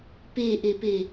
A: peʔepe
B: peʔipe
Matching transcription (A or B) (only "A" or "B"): A